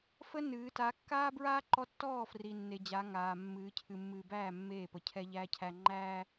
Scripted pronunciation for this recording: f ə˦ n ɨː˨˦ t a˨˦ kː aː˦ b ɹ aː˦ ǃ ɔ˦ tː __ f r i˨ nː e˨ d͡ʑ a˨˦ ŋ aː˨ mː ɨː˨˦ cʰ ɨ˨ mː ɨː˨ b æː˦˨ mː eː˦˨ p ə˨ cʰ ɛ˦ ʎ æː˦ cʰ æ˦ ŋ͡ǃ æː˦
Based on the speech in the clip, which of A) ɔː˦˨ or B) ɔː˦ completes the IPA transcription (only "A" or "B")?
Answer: A